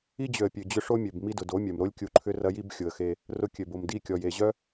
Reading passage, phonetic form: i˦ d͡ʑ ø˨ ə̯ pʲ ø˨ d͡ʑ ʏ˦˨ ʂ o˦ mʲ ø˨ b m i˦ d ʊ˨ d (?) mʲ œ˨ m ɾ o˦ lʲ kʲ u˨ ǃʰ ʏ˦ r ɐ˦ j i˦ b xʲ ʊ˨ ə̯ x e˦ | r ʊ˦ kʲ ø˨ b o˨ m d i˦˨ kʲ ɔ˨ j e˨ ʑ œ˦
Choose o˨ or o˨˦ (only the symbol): o˨˦